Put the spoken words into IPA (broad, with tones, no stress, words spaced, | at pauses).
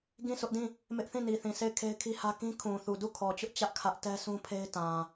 ɡĩ˦˨sʰʊ˦ʔdĩ˦˨ | mɪ˦ʔ θĩ˦˨ni˨θĩ˨ sʰe˦˨ɪ̯kʰe˦ɪ̯kʰi˦hä˦ kĩ˦ kʰũ˨θu˨ du˦˨kʰɔ˨t͡ɕʊ˦ʔ t͡ɕä˦ʔ kʰä˦ʔ tɛ˦sũ˦pʰe˦ɪ̯ tã˨